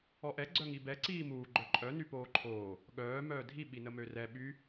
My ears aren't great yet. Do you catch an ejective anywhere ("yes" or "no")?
yes